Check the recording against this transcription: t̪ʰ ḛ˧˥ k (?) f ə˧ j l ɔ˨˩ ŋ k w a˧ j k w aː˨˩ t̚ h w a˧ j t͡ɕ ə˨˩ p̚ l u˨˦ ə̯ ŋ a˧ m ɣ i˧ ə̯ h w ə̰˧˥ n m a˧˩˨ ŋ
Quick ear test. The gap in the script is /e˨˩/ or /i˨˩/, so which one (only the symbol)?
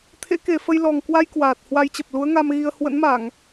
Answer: e˨˩